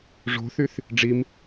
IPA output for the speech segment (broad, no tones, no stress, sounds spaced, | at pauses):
ʐ o̤ θ y θ | ɖ͡ʐ i m